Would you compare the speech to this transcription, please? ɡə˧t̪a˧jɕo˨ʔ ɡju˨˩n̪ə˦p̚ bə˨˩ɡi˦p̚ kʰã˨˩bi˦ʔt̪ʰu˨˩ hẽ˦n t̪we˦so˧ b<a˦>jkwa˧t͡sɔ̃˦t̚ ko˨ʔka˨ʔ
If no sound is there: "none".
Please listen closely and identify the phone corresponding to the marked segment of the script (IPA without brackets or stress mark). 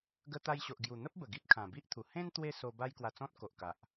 a˦